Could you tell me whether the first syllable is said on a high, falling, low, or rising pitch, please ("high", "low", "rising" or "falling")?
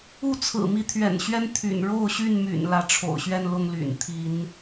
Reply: falling